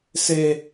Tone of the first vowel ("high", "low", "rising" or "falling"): high